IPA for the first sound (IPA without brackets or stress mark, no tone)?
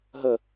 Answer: ɦ